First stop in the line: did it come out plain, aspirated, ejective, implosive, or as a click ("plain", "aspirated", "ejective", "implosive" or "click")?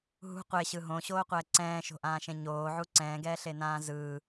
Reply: plain